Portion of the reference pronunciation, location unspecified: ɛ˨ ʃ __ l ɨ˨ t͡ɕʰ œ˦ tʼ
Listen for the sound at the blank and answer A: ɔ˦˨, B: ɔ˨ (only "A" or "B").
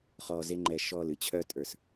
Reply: A